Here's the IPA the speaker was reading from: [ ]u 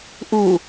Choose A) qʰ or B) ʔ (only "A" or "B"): B